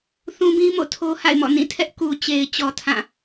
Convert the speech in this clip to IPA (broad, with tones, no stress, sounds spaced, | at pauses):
θ ũ˦ b ĩ˦ m o̰˦˨ tʰ o˦ h a̰˦˨ ɪ̯ m ɔ̰˦˨ n ĩ˦˨ tʰ ɛ˦ ʔ k u˨ t͡ɕ e˨ ɪ̯ t͡ɕ ɔ˨ tʰ ã˦˨